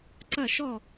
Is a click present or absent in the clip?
present